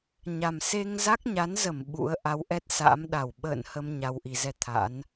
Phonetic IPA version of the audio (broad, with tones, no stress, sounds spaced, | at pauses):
ɲ a˨˩ m s e˧ ŋ z a˦˥ k̚ ɲ a˨˦ n z ə˧˩ m ɓ ṵ˧˥ ə̯ ʔ a˨˦ w ʔ ɛ˦˥ t̚ s a̰ː˧˥ m ɗ a˧˩ w ɓ ə̰ː˧˨ n h ə˧ m ɲ a˨˩ w ʔ i˧˩ z ɛ˧ t̪ʰ a̰˧˥ n